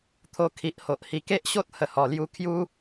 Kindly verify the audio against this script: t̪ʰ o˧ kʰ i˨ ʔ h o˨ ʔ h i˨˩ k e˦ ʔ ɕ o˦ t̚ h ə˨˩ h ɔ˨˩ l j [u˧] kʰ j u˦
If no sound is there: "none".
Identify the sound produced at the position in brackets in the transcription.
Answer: u˧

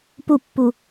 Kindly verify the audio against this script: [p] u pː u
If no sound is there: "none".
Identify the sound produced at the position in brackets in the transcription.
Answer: p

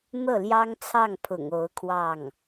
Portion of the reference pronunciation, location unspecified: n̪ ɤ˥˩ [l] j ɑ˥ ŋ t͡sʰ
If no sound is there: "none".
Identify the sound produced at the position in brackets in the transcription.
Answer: l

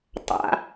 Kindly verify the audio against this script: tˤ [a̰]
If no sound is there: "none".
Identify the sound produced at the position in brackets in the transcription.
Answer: a̰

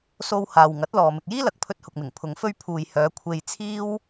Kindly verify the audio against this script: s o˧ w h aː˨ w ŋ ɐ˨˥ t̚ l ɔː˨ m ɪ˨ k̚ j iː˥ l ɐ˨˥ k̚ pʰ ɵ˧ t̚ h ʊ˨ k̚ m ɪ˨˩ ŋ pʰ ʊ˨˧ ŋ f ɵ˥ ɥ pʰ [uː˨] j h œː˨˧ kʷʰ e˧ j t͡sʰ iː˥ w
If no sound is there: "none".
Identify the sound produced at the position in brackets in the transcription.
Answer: uː˨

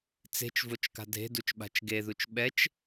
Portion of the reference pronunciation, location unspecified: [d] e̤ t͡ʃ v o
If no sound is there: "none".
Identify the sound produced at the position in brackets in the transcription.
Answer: t͡s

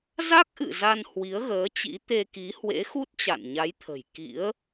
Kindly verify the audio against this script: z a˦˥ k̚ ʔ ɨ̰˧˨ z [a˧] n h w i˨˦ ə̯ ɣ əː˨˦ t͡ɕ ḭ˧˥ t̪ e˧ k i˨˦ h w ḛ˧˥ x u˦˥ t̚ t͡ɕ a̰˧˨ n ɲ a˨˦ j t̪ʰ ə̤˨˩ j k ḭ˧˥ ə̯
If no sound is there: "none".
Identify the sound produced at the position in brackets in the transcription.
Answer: a˧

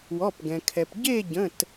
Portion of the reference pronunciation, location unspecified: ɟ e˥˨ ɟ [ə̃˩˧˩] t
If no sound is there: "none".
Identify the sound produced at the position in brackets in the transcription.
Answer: ə̃˩˧˩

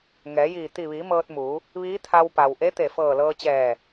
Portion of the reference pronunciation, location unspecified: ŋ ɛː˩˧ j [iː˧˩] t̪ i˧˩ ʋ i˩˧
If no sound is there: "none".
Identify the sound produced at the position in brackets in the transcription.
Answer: iː˧˩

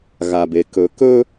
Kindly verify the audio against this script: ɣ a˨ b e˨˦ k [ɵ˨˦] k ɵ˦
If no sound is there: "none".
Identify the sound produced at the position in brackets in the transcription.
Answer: ɵ˨˦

